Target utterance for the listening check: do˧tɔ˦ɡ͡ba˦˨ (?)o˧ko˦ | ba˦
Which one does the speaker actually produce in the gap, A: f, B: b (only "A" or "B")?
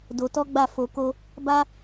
A